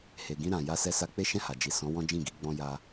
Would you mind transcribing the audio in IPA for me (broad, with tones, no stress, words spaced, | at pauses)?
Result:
he˨ɡĩ˧ɾã˨ ja˧sɛ˧sa˧ k͡pe˦ʃɛ̃˦˨ha˨ d͡ʒi˨sɔ̃˨˦ wɔ̃˦d͡ʒĩ˦˨ɡi˨˦ ɡ͡bɔ̃˧ ja˧